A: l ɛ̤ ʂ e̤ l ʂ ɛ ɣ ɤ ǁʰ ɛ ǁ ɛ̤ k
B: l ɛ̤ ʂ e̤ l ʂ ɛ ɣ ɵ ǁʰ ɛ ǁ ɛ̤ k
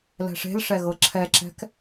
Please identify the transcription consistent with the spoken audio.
A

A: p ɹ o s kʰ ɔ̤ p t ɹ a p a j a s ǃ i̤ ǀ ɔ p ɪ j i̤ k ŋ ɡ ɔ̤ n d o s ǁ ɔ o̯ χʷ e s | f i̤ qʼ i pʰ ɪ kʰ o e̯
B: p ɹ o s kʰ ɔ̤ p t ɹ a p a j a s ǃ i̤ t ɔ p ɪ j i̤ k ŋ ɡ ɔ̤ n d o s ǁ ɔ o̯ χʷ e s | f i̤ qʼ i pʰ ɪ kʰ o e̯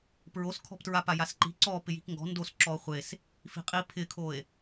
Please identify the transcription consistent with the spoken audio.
A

